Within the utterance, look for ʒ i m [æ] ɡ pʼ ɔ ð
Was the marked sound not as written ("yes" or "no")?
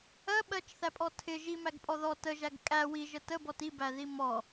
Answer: no